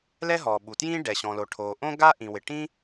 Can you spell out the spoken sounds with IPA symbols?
l ɛ˥ ɦ ɔ˩ ɓ u˩ t j ĩ˥ ɖ ɛ˩ ɕ ɔ̃˩ l o˩ ʈʰ o˩ ʔ õ˥ ɡ a˥ ʔ ĩ˩ w ɪ˩ ʈ ĩ˥

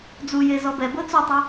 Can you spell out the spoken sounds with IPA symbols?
d͡z u j e z ɔ b ɛ b ɤ t͡s o tˤ i

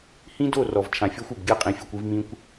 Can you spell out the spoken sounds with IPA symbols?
h ĩ˦ d o˦˨ r ɔ˨ v t͡ʃʰ ã˨ fʲ ɔ˦ xʷ o˨ b ɡʲ ɤ˦˨ qʼ ĩ˨ fʲ u˨ kʷ i˧ v m ĩ˧ kʷ

